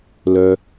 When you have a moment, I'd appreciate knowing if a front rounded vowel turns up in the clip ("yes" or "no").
yes